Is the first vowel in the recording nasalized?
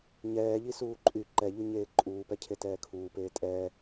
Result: no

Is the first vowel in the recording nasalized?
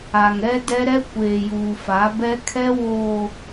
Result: no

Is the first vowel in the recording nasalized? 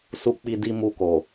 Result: no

